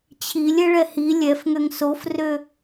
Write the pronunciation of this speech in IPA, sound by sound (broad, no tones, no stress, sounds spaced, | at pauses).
t͡ɕʰ i lʲ ɛ ɭ ɛ h i lʲ ɛ f ŋ ø ŋ s o f r ø